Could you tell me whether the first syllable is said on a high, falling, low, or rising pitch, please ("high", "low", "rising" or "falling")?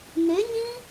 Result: rising